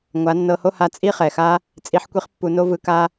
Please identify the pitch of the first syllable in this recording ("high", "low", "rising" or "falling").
rising